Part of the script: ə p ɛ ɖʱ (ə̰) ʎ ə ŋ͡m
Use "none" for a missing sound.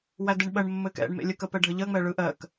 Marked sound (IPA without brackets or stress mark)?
ə